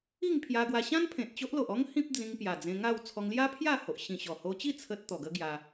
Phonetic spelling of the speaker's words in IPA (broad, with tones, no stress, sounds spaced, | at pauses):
i˥˧ ŋ pʰ j a˧ ɡ w a˧ ɕ ã˦ n pʰ ẽ˨ t̚ t͡ɕ o˦ ʔ l o˨ ʔ ɔ˦ ŋ h ĩ˦ p̚ d͡z ĩ˧ ŋ p j a˨˩ d͡z ẽ˧ ŋ a˥˧ w t͡sʰ ɔ˧ ŋ l j a˦ pʰ j a˥˧ h o˨ ʔ ɕ ĩ˨˩ ɕ ɔ˨˩ h o˧ t͡ɕ i˥˧ t͡sʰ ə˦ t̚ t̪ ɔ˨˩ ɡ ə˦ ɡ j a˧